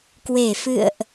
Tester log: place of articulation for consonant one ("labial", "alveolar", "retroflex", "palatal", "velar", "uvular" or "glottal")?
velar